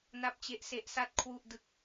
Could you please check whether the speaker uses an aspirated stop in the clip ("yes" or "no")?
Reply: yes